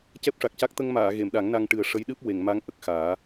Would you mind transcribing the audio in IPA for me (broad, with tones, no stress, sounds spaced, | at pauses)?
c ɛ˦˥ p̚ ʂ a˨˩ k̚ c a˦˥ k̚ t̪ ə˧ ŋ m aː˨˩˨ ɣ e˨˩˨ m ɗ a˨˩˦ ŋ n a˧ ŋ ʈ ɨ˨˩ ə̯ ʂ ə˧˥ j ɗ ɨ˦˥ p̚ w e˨˩˨ ŋ m a˧˥ ŋ ʔ ə˨˩ k̚ x aː˨˩˦